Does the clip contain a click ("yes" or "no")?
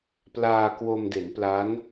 no